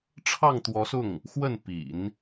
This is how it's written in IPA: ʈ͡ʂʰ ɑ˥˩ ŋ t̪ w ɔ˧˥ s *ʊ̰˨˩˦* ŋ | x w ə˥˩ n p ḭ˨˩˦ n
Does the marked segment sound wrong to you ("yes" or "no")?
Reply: yes